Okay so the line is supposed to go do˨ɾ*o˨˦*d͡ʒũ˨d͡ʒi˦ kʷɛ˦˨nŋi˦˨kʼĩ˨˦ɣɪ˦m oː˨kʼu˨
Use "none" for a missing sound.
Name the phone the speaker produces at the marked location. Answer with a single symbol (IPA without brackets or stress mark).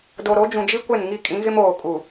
o˨˦